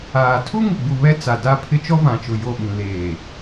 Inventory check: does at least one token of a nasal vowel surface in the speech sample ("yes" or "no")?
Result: yes